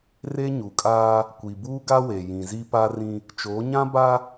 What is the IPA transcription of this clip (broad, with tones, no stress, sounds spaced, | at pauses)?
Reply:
r e˦ ɲ u˨ kʼ aː˦ | kʷ i˨ b uː˦ ɡ a˦ w e˨ j ĩ˨ z i˦ p a˦ r ĩ˦ | t͡ʃ o˨˦ ɲ ã˦ b a˦